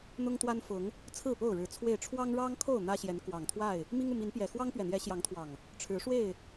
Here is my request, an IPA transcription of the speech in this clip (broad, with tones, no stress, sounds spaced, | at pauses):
n̪ ʊ˦ ŋ t̪ w a˦ n f ʊ˨˦ ŋ | t͡sʰ ɹ̩˥˨ p o˥˨ ʊ̯ ɻ ɻ̩˨˦ t͡sʰ w e˥˨ ɪ̯ ʈ͡ʂʰ w ɑ˦ ŋ ɻ ɑ˦ ŋ kʰ o˥˨ ʊ̯ n̪ ä˦ ɕ j ɛ˨˦ n k w ɑ˨˩ ŋ t̪ʰ w a˥˨ ɪ̯ | m i˦ ŋ u˨ m i˨˦ n p j ɛ˨˩ x w ɑ˦ ŋ p ɥ ɛ˨˩ n̪ j ɛ˨˦ ɕ j ɑ˨˦ ŋ t̪ʰ w ɑ˨˩ ŋ | ʈ͡ʂʰ ɻ̩˨˦ ʂ w e˥˨ ɪ̯